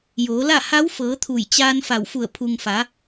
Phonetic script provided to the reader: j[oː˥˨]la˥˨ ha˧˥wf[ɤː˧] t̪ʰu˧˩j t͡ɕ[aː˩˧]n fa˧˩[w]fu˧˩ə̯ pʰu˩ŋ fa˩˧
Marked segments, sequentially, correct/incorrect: incorrect, incorrect, incorrect, correct

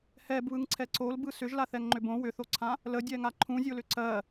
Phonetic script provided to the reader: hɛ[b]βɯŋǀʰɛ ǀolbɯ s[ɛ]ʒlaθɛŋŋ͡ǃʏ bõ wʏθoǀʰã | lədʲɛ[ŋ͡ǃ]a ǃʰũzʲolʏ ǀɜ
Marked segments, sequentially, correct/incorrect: correct, incorrect, incorrect

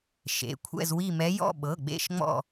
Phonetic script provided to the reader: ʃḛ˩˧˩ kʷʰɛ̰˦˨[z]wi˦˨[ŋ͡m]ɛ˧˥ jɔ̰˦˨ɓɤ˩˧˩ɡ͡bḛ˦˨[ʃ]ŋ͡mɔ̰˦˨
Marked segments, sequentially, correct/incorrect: correct, incorrect, correct

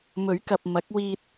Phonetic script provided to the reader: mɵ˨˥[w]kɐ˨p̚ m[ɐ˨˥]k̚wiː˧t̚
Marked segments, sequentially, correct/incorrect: incorrect, correct

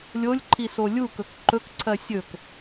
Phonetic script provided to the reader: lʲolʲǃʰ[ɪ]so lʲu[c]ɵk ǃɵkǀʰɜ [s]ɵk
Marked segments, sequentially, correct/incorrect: incorrect, incorrect, incorrect

